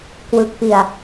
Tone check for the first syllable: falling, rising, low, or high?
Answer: low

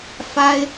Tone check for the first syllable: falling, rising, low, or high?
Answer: high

